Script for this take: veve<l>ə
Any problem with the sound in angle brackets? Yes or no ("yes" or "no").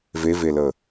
no